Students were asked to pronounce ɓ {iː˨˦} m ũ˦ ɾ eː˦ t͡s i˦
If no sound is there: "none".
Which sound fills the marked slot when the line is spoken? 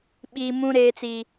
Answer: iː˦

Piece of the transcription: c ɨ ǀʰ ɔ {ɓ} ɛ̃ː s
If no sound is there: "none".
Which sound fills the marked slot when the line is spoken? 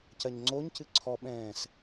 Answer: ɓ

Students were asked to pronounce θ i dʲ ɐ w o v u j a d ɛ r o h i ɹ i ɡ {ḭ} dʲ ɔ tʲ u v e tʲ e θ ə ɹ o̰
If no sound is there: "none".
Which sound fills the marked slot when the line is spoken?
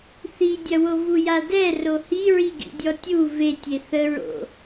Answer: ḭ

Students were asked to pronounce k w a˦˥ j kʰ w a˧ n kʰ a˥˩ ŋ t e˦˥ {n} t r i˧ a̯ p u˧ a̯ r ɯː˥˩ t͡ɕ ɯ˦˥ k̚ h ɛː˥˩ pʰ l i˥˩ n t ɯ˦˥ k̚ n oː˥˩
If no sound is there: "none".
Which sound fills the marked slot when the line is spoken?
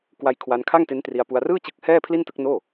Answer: n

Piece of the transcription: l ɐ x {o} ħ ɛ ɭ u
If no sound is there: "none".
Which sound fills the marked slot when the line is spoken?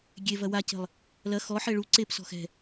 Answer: ɔ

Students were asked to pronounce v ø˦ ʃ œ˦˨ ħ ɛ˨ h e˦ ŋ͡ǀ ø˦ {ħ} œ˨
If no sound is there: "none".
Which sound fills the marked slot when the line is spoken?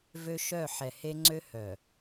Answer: h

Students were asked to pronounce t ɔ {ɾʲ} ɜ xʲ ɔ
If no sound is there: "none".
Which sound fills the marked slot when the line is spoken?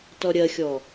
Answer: ɾʲ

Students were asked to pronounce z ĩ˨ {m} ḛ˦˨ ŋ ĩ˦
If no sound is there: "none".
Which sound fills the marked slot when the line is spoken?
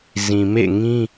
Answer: m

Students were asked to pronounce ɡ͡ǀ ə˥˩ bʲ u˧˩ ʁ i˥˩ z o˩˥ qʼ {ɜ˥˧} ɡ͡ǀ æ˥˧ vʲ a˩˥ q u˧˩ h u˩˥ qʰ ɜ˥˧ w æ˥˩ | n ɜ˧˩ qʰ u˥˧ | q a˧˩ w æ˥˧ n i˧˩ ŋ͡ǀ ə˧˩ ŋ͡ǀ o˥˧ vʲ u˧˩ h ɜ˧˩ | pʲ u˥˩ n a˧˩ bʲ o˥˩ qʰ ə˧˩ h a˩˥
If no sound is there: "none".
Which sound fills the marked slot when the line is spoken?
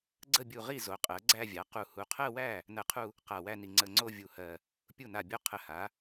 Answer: ɜ˩˥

